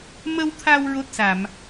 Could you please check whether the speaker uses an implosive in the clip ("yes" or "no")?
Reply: no